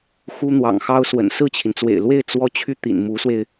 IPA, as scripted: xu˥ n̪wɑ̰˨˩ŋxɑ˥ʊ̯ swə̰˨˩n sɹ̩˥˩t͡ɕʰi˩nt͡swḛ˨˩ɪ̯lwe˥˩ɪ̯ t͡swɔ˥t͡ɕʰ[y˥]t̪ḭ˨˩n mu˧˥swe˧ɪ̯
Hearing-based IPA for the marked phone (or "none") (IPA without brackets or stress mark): y˥